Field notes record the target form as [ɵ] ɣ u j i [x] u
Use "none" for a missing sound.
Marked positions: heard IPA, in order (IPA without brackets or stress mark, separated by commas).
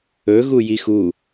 ɵ, x